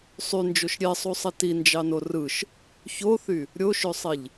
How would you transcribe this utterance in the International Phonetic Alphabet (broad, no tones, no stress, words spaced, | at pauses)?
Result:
sˤynd͡ʒoʃ ɾʲesˤusˤi tind͡ʒɑno rɯʃ | çoθy | ɾʲoʃøsˤiʎ